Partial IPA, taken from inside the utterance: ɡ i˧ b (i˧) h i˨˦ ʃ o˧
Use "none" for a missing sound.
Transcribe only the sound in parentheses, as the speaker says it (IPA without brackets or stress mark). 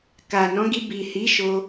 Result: i˨